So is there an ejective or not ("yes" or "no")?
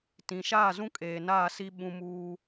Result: yes